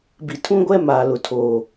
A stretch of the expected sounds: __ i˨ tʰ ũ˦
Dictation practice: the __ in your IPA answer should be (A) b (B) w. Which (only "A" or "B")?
A